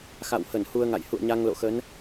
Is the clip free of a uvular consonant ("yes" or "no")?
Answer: yes